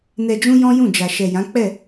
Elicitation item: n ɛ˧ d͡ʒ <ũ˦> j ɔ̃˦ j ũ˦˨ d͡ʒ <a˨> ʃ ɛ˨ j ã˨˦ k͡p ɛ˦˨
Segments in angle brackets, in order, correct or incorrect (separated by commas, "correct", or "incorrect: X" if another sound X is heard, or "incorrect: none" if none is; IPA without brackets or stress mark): correct, correct